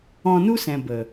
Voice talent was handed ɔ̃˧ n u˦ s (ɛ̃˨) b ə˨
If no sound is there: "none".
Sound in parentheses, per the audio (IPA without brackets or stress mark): ɛ̃˨